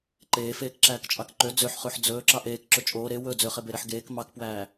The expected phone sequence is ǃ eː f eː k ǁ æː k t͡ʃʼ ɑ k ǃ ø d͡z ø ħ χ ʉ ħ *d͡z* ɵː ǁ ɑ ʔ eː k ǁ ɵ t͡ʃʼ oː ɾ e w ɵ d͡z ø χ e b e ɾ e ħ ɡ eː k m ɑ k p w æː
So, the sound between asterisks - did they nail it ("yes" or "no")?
yes